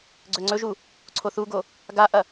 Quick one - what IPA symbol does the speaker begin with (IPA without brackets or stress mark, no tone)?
ɡ͡ǀ